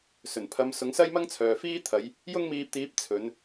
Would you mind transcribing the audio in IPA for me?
sɵ˨˩npʰɐ˨˧m sʊ˨˥ŋsɐ˥jmɐ˥ŋt͡sʰœː˨ fiː˥t̪ʰɐ˨˧j | jʊ˥ŋmiː˧p̚t̪iː˨˥p̚ t͡sʰɵ˨˧n

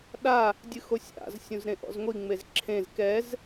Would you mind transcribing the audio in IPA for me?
ɗa | dʲɨxosʲa̰z sʲũzɾẽʔɔ̰zŋʷi ŋ͡mezǁʰẽz kɛz

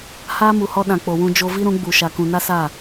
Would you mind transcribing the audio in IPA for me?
haː˦mu˨hɔ˧ ɗã˨k͡po˨wũ˧ d͡ʒo˧vi˦ ɾũ˨˦ɡ͡bu˨ ʃa˨kũ˨ na˦ sa˦˨

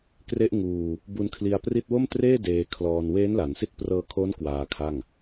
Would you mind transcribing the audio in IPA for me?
kre˦˥ʔŋuː˧ | bu˧nkʰli˧a̯pri˥˩t̚ wo˥˩mtreː˥˩ deː˧kʰlɔː˧n weː˦˥nla˩˦nsi˦˥t̚ prɤː˧kʰo˦˥n kwaː˧kʰa˥˩ŋ

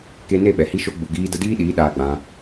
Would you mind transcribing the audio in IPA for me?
ke˧ne˦˨ ɓɛ˨hi˦ʃo˦ ɡ͡bu˨ɡiː˧ də˧diː˦ɗiː˨˦ ɗaː˧ɡ͡bã˧

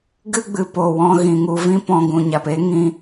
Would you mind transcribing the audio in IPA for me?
ɡɨ˦ɡ͡bɨ˨ po˨wɔ̃˧ ɣĩ˨ŋu˧ vĩ˧ pɔ̃˧ɡũ˨ɲa˨p e˦ŋĩ˧

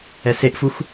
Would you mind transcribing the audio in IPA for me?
ɛseʔfux

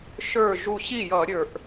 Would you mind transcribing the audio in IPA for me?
ʃə˞˧˩ ʒu˧˩ɕi˥˩jʌ˧˩˧ ɾʲə˞˧˩˧ʔ

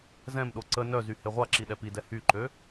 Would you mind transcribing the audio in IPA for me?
zɛ̃mɗo ǀə nœzy heʁʷaǁi ɗɛpidɛ hyǃø

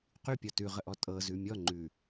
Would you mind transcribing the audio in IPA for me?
qypʲɔ tʉʁəʔɔ tʼɤzʉ mʲɔŋ͡ǃʉ

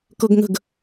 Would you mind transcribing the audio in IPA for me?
kɤɡŋə̤ɡ

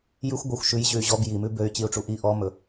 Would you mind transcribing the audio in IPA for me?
jʉxʷ ɡʷɑxʷ ʃʉj ʑʉy̯ʑɔb ji mʉbøy̯ t͡ɕiu̯ʈ͡ʂuʔi ʔɔmɵ

